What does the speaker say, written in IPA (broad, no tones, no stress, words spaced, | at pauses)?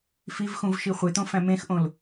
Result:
fivxũvʃi χʷet̪õfæ̃ mẽxʔõl